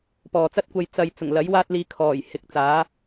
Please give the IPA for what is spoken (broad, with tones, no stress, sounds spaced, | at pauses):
p ɔː˨ t͡s ɐ˥ t̚ kʷ ɐ˧ j t͡s ɐ˨ j t͡s ʊ˨˩ ŋ l ɐ˨˥ j w aː˥ t̚ l iː˧ kʰ ɔː˨˩ j h ɪ˨˥ k̚ t͡s aː˨˥